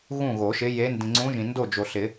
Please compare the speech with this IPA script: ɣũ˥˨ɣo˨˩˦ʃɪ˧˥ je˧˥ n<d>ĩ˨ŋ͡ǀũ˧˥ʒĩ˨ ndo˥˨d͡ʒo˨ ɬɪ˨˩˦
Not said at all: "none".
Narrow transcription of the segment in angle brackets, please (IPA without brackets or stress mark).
d